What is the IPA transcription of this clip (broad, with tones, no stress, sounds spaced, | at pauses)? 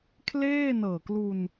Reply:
kʰ l eː˥˩ n ɤː˨˩ k l u˧ n